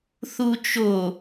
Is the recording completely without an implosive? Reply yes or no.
yes